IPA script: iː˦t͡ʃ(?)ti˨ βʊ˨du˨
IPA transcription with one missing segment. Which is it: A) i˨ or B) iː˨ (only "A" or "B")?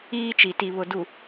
A